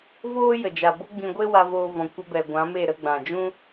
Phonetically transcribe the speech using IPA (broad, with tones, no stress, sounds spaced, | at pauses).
v oː˦ j ə˨ d͡ʒ a˨ b o˦ ɡ͡b ĩ˧ ɡʷ e˦ w a˧ v oː˧ v ɔ̃˨ kʷ ə˧ b ɛ˨ ɡʷ ã˨˦ m e˦˨ ɾ ə˦˨ ɡ͡b ã˨ d͡ʒ ũ˦